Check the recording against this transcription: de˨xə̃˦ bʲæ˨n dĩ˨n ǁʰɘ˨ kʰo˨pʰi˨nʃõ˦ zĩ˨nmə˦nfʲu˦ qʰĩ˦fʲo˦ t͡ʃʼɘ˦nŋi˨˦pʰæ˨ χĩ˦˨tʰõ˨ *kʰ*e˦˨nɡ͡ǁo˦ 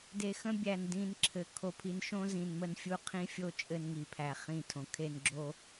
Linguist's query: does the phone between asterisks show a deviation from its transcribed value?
no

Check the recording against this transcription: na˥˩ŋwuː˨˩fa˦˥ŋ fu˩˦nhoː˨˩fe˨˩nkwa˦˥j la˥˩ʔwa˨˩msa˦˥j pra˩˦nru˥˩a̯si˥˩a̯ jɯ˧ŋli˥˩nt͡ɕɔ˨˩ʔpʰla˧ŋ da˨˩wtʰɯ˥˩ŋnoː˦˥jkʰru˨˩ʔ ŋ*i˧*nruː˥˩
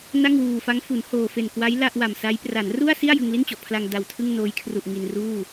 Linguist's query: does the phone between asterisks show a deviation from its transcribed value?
no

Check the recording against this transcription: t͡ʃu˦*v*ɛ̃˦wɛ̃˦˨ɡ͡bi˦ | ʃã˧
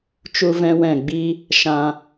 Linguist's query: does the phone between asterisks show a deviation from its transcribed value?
no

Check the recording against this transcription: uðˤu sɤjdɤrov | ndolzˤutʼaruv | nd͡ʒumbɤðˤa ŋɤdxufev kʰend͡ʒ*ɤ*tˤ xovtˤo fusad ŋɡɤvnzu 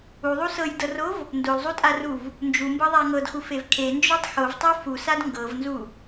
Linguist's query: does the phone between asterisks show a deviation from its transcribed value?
yes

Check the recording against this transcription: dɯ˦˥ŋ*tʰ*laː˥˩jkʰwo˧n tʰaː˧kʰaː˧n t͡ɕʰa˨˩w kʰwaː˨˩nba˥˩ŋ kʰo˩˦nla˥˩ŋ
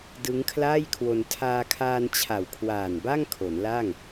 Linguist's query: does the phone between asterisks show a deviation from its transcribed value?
yes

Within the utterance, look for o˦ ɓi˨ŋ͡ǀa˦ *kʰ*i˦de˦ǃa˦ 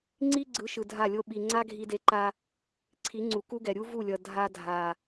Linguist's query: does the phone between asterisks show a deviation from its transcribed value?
yes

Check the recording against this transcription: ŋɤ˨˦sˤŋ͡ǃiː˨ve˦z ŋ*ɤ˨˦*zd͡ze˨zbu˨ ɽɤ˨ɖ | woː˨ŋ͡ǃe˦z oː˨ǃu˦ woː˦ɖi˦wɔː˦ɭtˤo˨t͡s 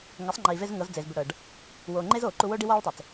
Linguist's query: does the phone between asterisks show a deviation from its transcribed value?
no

